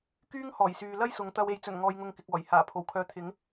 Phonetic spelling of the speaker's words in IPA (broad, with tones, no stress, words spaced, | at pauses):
kyː˥ŋhɔː˨˩jsyː˨ lɐ˥jsʊ˨˧ŋ t̪ɐ˧w e˨jt͡sɵ˨˩n ŋɔː˧jŋʊ˧ŋkɪ˨k̚ɔː˨˩j haː˨˩pʰo˨˩wkʰœː˨t̪ʰɪ˨˧ŋ